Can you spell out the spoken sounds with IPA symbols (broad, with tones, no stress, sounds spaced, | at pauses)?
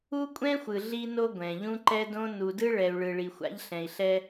u˦ kʷʼ ɛ̃˦ xʷ ɯ˨ ɮ i˦ n o˦ ɡʷ ɛ̃˨ ʎ ũ˦ ǃ ɛ˦ d õ˦ n u˨ d ɯ˦ ɭ ɛ˨ u̯ ɭ ɯ˨ ɭ i˨ xʷ a̰˦ ʎ ɬ ɛ̃˨ i̯ ɬ ɛ˦